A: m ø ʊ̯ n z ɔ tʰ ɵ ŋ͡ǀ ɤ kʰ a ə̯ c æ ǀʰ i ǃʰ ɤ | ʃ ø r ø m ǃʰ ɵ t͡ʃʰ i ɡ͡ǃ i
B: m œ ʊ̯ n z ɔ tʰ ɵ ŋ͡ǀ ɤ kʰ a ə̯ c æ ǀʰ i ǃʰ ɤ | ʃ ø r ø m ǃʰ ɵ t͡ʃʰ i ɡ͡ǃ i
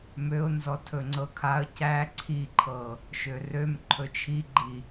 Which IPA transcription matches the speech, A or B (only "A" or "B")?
A